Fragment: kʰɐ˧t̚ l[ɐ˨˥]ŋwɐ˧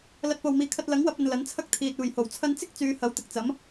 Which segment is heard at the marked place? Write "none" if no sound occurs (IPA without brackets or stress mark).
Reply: ɐ˨˥